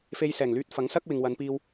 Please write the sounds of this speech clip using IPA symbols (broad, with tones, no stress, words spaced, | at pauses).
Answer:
fe˧jsɛː˨˩ŋlyː˧t̚fɐ˨˥ŋ sɐ˥k̚ wɪ˨ŋwɐ˨˧n piː˧w